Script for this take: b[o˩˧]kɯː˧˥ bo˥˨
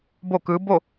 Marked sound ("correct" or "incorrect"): incorrect